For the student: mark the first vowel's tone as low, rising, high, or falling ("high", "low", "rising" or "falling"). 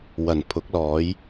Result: low